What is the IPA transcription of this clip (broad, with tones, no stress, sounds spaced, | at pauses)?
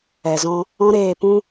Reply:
ɛ˨ z ɔ̃˧ | ɔ̃˦ ɾ eː˦˨ p ũ˦